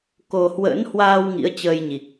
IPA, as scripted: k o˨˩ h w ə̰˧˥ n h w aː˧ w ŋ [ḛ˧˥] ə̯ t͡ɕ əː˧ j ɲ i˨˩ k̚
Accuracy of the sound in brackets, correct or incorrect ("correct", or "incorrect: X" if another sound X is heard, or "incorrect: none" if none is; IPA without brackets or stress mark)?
incorrect: ḭ˧˥